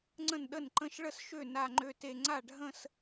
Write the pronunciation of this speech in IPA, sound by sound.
ŋ͡ǀə̃˥˩nɗə˥˩nǃə̃˥˧ʃ ɭə˥˧sʃø˥˩ na˥˧ŋ͡ǃø˥˧te˥˧ ŋ͡ǀa˥˩ɖʱə̃˥˧s

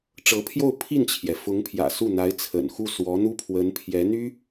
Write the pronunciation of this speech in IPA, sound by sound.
ʈ͡ʂɤ˧˥pʰjo˥˧ʊ̯ pʰi˥˩nt͡ɕʰjɛ˩ fʊ˧˥ŋpʰjä̰˨˩ su˥˩n̪a˧˥ɪ̯t͡sʰə̰˨˩n xu˥˩swɔ˧˥n̪u˥pʰwə˧˥n pʰjɛ˧˥n̪y˥

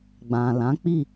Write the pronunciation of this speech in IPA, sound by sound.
ɡ͡bã˨ lã˨˦k͡pi˦˨

